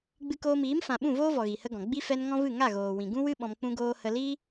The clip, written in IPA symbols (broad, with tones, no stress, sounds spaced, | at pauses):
ɡ͡b ɨ˧ k oː˧ m iː˨˦ m f ã˨ ɓ ũ˦˨ v oː˦ v ɔ˨ ɣ i˨ h ə˦ ɡ ɔ̃˨ ɡ͡b i˦ f ɛ˧ n ŋ ɔ̃˦ v ɨ˦˨ ŋ a˦˨ ɣ oː˨ w ĩ˨ ɡ ũ˦ w ɨ˦ ɓ ɔ̃˧ m k͡p ũ˦ ɡ oː˦ h ə˧ l iː˦